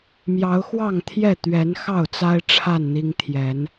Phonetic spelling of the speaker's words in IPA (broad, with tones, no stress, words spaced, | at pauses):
mjɑ˨˦ʊ̯xwɑ˥˨ŋt̪ʰjɛ˥˨ t̪ɥɛ˨˦n xɑ˥˨ʊ̯t͡sa˦ɪ̯ ʈ͡ʂʰa˥˨nn̪i˦ŋ t̪ʰjɛ˨˦n